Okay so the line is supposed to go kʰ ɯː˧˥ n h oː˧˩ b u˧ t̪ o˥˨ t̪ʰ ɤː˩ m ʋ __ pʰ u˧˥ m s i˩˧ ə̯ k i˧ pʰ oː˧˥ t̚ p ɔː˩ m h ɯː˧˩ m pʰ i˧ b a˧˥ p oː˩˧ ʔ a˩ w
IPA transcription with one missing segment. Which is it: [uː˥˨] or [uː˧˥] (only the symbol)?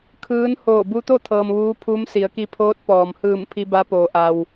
uː˧˥